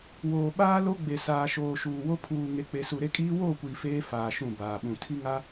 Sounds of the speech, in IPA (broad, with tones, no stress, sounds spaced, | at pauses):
w oː˨ ɓ aː˦ l o˦ ɡ͡b e˨ s aː˨ ʃ oː˨ ʃ uː˨ w o˦ pʰ uː˨ ŋ e˨ k͡p e˨ s u˨ ɾ e˦ kʼ iː˦ w oː˦˨ kʷ iː˨ f eː˦ f aː˨ ʃ ũ˦˨ b aː˨ ɓ ũ˨ tʰ i˦ ŋ a˦